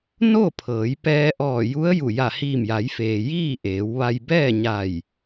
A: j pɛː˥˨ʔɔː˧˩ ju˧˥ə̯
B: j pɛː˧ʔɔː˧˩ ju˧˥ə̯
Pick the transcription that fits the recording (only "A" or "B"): B